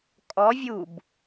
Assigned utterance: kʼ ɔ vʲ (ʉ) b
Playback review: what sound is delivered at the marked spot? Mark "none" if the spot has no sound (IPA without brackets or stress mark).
u